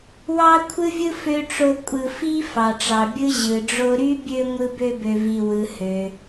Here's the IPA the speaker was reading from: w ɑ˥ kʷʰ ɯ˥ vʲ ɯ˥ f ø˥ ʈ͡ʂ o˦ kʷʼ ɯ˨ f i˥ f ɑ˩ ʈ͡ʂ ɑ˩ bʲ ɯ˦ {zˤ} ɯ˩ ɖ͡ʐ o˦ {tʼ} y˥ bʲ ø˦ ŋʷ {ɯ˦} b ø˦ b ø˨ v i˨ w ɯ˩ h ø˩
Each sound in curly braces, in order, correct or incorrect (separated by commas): incorrect, incorrect, correct